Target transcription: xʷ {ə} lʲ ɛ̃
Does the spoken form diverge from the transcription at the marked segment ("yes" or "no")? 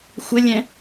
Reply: no